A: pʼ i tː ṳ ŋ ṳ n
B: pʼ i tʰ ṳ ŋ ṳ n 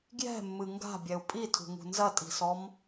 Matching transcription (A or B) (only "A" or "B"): B